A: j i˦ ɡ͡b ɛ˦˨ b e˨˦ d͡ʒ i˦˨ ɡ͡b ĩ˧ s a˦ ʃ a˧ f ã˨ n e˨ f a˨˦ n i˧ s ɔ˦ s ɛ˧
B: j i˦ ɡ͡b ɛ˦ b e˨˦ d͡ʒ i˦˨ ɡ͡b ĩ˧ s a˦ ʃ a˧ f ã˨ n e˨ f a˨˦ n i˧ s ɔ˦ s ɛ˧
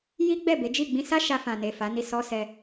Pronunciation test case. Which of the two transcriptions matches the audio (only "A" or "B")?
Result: A